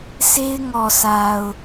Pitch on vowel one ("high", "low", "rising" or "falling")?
high